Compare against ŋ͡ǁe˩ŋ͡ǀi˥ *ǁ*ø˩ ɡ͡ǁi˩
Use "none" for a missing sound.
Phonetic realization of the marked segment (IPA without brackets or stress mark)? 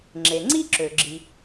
ǁ